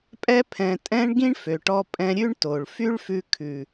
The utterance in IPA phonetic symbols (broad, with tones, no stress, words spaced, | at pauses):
pʼɛ˧pʰɛ̃˨tʼɛ̃˧ɳ ɡĩ˦ɳfø˨ʈɔ˧ pʼɛ̃˧ɾʲʉ˦ɳto˨ɭ fy˦ɭfʉ˧kʰʉ˨